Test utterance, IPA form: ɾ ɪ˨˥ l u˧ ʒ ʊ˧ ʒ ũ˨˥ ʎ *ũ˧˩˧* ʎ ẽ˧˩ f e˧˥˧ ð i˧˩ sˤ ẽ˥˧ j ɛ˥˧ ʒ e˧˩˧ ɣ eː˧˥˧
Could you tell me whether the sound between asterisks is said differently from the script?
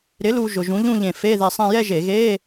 yes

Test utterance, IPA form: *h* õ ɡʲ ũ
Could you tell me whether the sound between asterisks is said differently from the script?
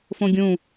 yes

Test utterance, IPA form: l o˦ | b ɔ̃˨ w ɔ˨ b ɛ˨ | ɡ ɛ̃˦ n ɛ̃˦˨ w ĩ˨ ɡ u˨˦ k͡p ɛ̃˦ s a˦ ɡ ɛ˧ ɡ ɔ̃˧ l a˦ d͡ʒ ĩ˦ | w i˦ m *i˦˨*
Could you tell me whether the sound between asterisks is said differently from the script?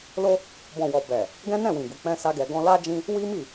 no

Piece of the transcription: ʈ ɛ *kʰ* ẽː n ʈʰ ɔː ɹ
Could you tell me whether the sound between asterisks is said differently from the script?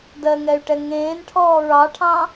yes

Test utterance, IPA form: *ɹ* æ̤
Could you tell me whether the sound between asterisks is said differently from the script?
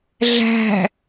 yes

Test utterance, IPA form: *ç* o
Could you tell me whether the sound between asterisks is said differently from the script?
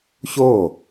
no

